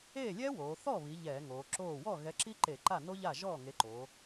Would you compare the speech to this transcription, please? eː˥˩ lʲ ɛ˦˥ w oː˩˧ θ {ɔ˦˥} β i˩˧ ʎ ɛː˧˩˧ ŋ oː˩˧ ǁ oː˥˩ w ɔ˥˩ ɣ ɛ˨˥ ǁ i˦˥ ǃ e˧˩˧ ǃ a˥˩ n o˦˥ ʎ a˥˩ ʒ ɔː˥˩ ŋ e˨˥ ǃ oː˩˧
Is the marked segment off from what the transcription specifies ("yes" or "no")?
yes